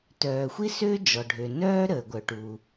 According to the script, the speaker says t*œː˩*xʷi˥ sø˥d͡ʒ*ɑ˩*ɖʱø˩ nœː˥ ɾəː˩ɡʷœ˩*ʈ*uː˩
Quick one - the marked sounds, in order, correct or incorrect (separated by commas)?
correct, incorrect, correct